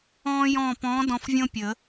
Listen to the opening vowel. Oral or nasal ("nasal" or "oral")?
nasal